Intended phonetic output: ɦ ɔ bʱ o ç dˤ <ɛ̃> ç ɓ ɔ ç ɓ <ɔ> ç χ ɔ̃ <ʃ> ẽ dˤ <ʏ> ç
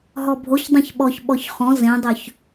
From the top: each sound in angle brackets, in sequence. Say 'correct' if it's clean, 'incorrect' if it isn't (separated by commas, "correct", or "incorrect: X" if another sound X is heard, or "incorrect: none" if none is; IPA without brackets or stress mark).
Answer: incorrect: ẽ, correct, incorrect: z, correct